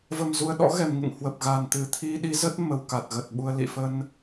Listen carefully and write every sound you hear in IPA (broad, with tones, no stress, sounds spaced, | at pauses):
v ə˨˩ m z u˨˩ ə̯ ɗ ɔ̰˧˥ ɣ ɛ˨˩ m ŋ ɨ̰˧˨ ŋ h w ə˨˩ p̚ ɣ a˨˩ n t̪ ɨ˨˩ t̪ʰ i˧ ɗ i˨˦ z ə˦˥ t̚ m ə˧ w k a˨˩ t̚ ɣ ə˨˩ t̚ ɓ u˧ ə̯ l ḭ˧˨ f ə˧ n